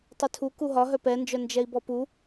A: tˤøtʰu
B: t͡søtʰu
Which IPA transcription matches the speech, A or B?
A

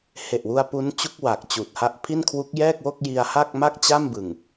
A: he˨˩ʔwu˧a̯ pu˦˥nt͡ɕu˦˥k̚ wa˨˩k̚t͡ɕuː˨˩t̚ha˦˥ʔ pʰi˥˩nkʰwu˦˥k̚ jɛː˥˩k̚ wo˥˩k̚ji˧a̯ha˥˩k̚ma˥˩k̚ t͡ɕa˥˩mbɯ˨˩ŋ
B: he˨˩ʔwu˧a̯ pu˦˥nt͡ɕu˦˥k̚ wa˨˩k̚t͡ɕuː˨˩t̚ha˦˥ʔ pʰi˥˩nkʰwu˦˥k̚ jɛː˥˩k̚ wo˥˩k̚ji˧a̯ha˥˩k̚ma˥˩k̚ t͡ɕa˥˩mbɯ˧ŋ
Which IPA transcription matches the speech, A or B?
A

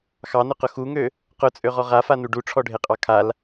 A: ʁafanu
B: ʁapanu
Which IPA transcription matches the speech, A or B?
A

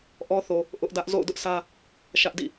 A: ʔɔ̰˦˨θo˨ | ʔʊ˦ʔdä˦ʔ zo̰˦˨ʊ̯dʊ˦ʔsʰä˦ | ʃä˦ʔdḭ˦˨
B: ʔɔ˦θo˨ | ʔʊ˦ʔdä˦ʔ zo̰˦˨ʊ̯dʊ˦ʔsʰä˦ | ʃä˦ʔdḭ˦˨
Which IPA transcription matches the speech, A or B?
B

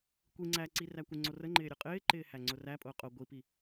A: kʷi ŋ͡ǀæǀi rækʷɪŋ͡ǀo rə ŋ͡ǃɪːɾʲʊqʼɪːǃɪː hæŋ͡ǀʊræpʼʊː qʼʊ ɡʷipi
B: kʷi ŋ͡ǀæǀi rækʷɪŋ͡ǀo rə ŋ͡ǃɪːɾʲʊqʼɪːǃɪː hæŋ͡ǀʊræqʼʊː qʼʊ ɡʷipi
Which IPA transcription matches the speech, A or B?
A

